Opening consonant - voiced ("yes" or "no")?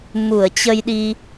yes